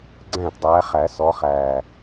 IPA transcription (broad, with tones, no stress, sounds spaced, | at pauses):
ɡ͡ǀ æ̃˥˩ t dˤ æː˨˦ χ æ˨˩˦ s ɔ˨˦ χ æː˨˩